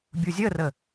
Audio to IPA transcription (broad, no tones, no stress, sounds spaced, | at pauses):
bʲ u zʲ ə r ə